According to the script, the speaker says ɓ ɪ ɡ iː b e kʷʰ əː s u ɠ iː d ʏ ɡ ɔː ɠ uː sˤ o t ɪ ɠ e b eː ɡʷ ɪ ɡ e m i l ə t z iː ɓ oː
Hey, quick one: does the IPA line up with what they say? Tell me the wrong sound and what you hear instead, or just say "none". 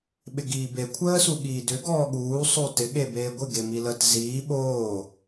none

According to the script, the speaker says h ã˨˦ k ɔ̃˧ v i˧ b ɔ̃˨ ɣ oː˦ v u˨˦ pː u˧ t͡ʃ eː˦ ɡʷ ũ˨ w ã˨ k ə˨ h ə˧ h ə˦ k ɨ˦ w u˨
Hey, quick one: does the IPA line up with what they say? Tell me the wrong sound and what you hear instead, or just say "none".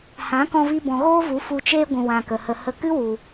pː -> f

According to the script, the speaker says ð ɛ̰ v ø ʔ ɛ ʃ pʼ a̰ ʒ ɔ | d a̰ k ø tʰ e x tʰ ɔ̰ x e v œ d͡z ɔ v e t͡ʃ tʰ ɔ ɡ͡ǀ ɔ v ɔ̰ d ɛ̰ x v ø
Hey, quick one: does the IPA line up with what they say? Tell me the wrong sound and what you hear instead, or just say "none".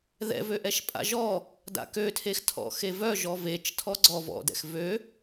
d͡z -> ʒ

